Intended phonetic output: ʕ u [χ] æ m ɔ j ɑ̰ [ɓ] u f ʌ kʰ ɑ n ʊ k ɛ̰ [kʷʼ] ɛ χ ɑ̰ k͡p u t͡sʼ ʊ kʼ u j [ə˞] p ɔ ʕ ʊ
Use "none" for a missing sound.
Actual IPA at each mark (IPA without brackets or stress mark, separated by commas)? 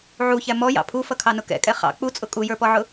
ç, pʰ, kʼ, ə˞